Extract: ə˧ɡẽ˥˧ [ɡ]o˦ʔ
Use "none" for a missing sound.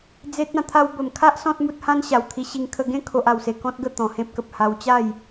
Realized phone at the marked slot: kʰ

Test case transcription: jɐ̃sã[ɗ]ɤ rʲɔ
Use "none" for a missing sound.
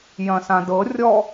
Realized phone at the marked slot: d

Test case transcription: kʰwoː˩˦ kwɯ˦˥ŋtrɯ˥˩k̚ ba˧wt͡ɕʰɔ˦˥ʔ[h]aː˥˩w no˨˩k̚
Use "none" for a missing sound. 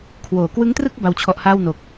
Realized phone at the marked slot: h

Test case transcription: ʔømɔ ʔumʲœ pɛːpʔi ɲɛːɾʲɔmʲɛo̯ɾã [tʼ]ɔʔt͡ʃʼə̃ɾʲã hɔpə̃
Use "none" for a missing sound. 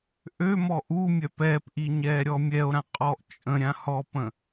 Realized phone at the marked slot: qʼ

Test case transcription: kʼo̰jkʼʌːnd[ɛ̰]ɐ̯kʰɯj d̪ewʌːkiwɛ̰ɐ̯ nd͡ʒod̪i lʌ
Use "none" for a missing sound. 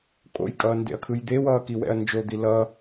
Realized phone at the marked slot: ḛ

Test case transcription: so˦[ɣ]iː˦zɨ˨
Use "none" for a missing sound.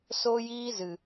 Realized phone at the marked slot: j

